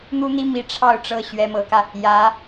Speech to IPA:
n̪u˥n̪i˥ mi˥ ʈ͡ʂʰɑ˥˧ʊ̯ʈ͡ʂɤ˥˩ ɕɥɛ˥mɤ˧˥kä˧ | jä˧˥

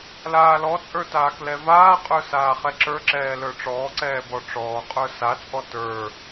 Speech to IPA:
laːlɔt͡sʼə˞ taːklɛvaːqʼə˞ saːχɛǁə˞ǁɛː lə˞ʈ͡ʂɔːǀɛː bɔʈ͡ʂɔːqʼə˞ sat͡sʼɔ tə˞

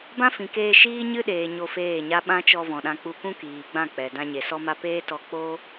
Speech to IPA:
bã˦fĩ˨keː˧ ʃiː˦ɲɨ˦ɗeː˨ ɲo˧feː˦˨ɲa˦ ɓã˦t͡ʃɔ˧ vɔ̃˨ɗã˧ k͡pu˧kũ˦kiː˨ɡ͡bã˦˨ k͡pɛ˨ dã˧ɲe˨ sɔ˦ma˦ peː˦tɔ˧ k͡po˦

